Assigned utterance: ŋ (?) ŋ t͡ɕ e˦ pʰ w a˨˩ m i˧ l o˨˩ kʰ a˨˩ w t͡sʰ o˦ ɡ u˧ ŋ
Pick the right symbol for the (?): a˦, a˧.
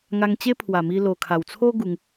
a˧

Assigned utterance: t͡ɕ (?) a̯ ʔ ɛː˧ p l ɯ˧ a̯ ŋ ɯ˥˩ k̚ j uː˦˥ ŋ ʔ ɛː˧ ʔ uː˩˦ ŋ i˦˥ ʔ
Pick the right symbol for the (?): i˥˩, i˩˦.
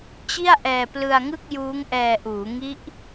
i˥˩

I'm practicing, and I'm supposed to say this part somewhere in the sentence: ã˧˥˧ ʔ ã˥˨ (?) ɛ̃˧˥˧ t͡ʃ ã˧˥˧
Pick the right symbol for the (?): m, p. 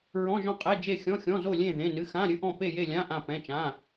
p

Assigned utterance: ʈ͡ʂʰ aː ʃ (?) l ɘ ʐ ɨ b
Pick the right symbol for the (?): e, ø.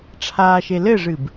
e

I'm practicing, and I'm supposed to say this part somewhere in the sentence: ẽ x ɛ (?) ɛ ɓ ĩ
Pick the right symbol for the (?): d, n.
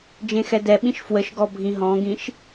d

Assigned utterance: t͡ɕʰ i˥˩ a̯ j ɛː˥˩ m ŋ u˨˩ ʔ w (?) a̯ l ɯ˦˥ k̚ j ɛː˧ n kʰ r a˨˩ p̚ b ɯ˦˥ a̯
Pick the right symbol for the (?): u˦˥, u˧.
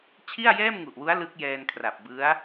u˦˥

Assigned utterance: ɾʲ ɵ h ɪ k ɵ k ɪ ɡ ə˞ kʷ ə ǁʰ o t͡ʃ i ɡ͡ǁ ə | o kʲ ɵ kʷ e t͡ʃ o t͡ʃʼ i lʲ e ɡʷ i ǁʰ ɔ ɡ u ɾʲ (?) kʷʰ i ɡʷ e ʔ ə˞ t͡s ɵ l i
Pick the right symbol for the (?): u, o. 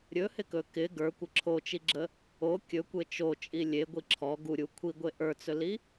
u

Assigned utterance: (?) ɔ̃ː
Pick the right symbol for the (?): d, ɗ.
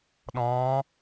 ɗ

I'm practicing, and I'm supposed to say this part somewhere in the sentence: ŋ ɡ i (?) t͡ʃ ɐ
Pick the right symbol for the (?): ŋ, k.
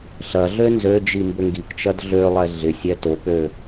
k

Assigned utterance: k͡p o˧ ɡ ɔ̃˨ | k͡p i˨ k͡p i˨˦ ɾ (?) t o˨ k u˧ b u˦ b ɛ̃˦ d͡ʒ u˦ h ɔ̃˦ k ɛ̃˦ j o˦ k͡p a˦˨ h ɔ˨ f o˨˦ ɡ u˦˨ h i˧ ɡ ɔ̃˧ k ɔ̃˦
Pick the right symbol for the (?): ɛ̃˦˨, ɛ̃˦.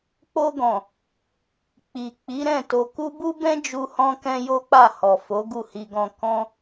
ɛ̃˦˨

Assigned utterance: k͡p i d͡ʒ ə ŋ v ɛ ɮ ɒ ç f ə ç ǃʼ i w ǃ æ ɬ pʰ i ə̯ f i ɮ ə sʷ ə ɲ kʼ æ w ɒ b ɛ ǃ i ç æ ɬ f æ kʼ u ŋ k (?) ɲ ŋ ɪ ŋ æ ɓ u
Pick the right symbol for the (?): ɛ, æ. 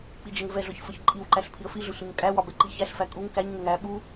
æ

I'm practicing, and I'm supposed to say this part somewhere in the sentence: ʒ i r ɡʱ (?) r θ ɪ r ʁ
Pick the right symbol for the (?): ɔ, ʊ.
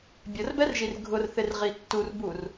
ʊ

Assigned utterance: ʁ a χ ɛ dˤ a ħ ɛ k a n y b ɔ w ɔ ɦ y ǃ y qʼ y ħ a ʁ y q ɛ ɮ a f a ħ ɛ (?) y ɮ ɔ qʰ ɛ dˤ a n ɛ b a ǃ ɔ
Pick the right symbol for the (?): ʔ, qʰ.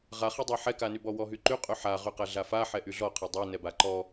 ʔ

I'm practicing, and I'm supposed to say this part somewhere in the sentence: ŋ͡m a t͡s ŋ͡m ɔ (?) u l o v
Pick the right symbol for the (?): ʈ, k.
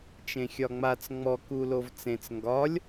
k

